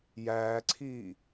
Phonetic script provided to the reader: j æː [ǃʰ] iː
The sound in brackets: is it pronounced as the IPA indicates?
no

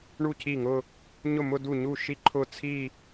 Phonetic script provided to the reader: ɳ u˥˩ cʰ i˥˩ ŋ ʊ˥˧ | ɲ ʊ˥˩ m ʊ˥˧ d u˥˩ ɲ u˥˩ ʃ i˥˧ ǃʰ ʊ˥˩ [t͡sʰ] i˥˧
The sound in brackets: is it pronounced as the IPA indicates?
yes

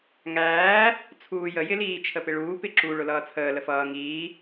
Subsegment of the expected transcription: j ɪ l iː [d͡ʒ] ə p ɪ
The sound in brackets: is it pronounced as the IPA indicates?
no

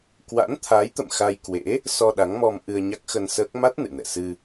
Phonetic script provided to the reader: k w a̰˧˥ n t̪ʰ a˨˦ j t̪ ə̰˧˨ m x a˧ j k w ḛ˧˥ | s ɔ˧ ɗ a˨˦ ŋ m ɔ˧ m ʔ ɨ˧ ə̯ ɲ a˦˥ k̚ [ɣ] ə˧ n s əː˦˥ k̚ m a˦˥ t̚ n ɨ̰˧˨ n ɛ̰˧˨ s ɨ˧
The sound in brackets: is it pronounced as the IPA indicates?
no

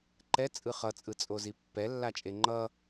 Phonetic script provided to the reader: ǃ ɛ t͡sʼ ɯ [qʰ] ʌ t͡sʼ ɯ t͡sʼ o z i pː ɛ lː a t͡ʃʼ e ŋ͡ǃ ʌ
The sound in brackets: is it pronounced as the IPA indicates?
no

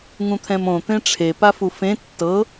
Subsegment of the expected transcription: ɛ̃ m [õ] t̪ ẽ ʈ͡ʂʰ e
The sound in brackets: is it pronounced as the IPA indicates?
yes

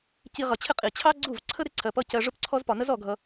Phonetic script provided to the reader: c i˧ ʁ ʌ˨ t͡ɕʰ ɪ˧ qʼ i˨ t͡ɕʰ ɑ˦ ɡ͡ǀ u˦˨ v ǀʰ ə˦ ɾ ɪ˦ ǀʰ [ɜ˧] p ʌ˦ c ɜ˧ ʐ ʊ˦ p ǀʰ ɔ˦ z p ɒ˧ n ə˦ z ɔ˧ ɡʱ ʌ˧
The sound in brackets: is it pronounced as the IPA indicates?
yes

